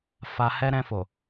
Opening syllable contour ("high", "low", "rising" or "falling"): low